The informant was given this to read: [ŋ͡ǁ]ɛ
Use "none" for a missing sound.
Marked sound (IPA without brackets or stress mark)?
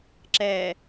ǁ